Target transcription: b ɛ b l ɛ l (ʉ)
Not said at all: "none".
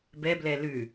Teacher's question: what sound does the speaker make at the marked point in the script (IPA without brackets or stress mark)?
ʉ